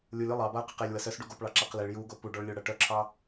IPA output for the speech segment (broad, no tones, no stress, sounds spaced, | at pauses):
lʲ u lʲ u lˠ ɑ b a ə̯ q e q e lʲ w ə s œ s ɖ u ɡ o p ɭ ɑ ǁ a q l e ɭ j u ɡ o p u ɖ ɔ ɭ lʲ o ɽ ɐ ʈ œ ǁʰ ɑ